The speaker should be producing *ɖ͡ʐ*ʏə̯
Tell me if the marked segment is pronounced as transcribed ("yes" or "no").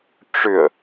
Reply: no